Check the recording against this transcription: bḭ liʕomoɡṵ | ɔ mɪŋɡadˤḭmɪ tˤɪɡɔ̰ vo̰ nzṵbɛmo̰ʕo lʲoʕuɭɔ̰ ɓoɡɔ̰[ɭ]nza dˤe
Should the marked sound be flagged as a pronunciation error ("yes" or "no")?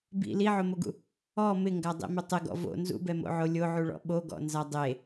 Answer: yes